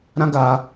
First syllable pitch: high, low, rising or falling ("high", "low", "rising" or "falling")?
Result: high